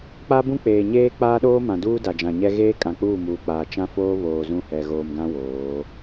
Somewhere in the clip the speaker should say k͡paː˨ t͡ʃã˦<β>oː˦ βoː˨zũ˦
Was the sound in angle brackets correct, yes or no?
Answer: no